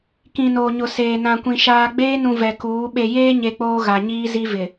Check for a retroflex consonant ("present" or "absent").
absent